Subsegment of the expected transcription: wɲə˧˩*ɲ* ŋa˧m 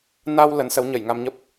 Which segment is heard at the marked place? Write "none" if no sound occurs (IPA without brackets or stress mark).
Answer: j